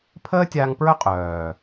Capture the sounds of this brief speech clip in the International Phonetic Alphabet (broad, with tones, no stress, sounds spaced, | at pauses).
pʰ əː˦ tʲ aː˧ ŋ p ɹ œ˦ qʼ œː˨